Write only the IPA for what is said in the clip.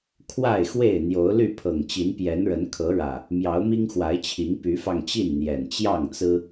kʰwa˥˨ɪ̯xwe˥˨ɪ̯ n̪jo˨˦ʊ̯ly˥˨ pʰɤ˨˩ŋt͡ɕi˨˦npjɛ˨˦nɻə˨˦n kʰɤ˨˦ɻä˨˩ | mjɑ˨˦ʊ̯mi˦ŋxwa˨˦ɪ̯t͡ɕʰi˨˦ŋ py˨˦fɑ˧ŋt͡ɕi˥˨nn̪jɛ˨˩n t͡ɕjɑ˥˨ŋt͡sɹ̩˦

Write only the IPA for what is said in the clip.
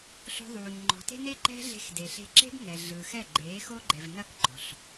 ɬo̤˧ðˤuː˨ɲ ŋ͡ǃɔ̤˨te̤˦ne˦ ǃɛ̤˦ɮe̤˧x de˨ɬe̤˧ǁe̤˦b ŋɛ˨ɮɯː˨x ɛ˦˨ɡ͡ǃeː˨˦xo˦ɡ͡ǃɛ˨v nɐ˦kɡ͡ǃɔ̤˨ɬ

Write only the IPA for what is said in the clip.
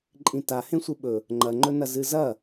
ǃʼĩta hẽsʷɨɓɵ | ŋ͡ǃɐŋ͡ǃɵ nɐzɨzɐ

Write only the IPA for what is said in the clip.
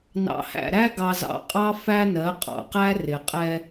nɑ̰˨hæ̰˨ɾæ˦ ɡɑ˨zɑ̰˨ qʼɑ˦ fæ˦nɜ˨˦ qʼɑ̰˨qæ˦ rɪ˨qʼɛ˦

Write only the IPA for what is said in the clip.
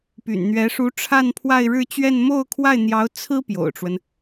py̰˨˩nn̪ɥɛ˧˥ ʂu˧˥ ʈ͡ʂʰa˥˧npʰwa˥˧ɪ̯ ɻɻ̩˥˧t͡ɕɥɛ˥˧n mo˥˧ʊ̯kʰwa˥˩ɪ̯n̪jɑ˧˥ʊ̯ t͡sʰɹ̩˥ pjo̰˨˩ʊ̯ʈ͡ʂwə˦n

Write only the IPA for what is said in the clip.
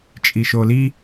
t͡ʃʼiʃoli

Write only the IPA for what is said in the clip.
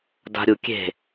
da̤ɾʲu kʲe̤

